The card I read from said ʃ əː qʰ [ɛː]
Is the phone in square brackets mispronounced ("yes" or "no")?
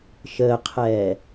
no